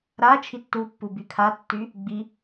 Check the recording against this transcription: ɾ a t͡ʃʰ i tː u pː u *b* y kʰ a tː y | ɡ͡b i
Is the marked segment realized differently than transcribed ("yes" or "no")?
no